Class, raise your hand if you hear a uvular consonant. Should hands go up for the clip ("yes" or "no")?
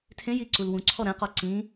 yes